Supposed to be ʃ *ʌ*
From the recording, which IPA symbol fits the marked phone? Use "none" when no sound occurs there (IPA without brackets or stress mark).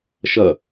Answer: ʌ